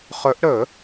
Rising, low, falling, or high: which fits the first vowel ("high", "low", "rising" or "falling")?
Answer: rising